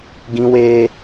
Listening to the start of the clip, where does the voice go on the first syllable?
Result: high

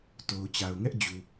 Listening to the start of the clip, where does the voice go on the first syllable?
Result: low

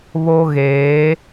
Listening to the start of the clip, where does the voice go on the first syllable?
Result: high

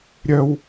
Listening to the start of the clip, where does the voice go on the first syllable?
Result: low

